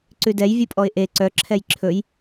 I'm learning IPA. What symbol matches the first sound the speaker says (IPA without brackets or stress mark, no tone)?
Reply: ǀ